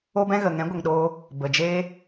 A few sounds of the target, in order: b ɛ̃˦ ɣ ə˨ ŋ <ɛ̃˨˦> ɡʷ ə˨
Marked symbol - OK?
yes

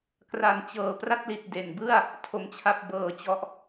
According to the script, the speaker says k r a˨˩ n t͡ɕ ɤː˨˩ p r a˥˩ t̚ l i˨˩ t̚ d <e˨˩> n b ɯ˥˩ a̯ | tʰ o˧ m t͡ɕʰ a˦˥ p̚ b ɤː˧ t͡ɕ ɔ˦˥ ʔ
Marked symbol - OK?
yes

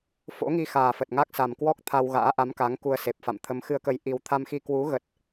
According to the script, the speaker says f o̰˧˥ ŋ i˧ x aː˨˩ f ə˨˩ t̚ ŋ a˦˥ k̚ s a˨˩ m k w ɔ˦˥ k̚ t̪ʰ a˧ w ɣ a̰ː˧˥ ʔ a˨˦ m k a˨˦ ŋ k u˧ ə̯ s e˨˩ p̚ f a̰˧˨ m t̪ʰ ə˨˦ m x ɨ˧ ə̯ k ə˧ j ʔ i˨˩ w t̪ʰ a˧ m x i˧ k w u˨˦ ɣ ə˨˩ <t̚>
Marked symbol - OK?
yes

